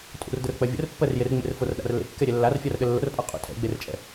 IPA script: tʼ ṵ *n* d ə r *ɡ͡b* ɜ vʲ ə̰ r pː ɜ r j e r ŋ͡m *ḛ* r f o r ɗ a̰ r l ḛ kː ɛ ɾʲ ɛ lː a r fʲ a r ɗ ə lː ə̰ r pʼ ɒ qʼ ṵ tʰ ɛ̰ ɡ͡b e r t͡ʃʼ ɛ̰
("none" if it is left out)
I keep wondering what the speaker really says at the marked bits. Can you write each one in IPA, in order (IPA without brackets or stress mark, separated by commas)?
r, k͡p, ḛ